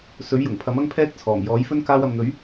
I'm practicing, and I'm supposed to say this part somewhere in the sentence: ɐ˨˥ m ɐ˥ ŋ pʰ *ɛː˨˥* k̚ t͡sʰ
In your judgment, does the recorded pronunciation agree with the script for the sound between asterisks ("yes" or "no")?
no